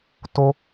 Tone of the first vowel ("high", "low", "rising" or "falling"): low